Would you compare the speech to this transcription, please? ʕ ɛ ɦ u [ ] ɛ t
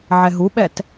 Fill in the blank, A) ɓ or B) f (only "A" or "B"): A